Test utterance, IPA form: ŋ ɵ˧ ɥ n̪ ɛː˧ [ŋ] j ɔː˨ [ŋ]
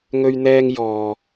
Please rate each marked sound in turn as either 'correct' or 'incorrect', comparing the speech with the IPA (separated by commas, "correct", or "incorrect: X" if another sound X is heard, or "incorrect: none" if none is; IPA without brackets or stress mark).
correct, incorrect: none